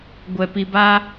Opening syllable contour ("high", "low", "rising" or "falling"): low